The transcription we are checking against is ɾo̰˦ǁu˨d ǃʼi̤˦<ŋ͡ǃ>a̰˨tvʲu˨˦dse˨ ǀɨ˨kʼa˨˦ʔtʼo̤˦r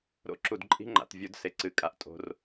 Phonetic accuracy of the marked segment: correct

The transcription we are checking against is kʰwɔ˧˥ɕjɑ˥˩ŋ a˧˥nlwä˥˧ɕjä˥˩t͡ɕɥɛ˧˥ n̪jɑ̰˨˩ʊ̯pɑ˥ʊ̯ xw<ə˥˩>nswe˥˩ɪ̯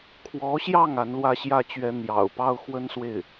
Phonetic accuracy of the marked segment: incorrect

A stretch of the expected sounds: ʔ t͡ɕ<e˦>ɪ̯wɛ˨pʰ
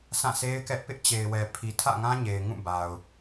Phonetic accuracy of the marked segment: incorrect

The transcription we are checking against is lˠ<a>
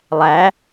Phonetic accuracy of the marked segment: incorrect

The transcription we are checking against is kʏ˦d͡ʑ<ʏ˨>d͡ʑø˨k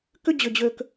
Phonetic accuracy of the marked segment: correct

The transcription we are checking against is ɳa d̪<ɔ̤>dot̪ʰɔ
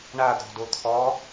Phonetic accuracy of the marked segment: correct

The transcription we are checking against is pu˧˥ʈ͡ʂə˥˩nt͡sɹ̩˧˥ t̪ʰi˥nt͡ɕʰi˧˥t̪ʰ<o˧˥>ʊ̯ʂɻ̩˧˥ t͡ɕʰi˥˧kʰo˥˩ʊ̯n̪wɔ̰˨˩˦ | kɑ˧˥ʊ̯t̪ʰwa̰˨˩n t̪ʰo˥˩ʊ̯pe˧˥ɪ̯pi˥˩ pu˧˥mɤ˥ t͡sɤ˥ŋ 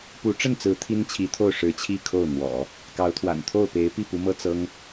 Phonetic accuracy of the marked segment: incorrect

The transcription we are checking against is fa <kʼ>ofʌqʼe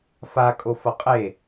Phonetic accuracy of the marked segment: correct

